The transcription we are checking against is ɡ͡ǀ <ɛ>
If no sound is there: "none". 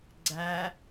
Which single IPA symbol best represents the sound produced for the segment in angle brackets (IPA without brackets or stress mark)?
æ